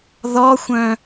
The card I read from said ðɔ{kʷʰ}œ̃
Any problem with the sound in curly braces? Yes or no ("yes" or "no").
yes